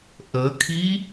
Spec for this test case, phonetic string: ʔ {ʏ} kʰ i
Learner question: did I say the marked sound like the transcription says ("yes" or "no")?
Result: no